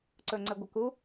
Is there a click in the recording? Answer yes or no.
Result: yes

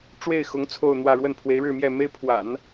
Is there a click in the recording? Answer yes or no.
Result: no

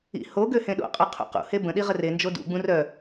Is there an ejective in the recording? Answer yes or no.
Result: yes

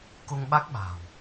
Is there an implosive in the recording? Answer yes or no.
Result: yes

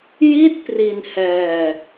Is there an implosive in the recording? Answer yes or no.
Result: no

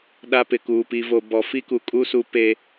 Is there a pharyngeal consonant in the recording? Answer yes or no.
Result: no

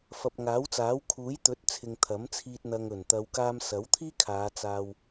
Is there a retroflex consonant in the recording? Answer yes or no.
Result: no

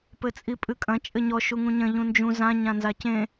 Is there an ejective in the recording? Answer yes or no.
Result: yes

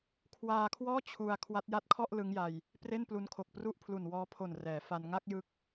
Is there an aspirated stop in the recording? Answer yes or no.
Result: yes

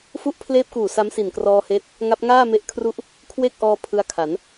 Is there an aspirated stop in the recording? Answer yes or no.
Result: yes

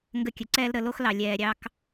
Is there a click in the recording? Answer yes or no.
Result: yes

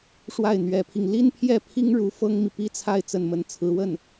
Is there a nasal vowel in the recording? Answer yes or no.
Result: no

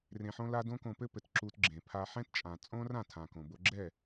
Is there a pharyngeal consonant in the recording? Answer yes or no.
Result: yes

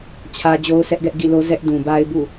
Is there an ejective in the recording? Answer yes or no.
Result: no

